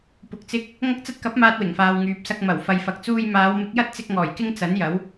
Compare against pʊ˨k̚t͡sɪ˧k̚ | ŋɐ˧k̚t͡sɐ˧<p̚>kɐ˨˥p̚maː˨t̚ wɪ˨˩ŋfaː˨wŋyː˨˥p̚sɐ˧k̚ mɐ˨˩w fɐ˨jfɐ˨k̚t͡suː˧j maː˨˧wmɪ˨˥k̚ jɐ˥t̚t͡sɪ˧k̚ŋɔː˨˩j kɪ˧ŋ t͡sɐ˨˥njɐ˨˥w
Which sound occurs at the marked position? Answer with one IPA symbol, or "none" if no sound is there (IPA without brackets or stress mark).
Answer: t̚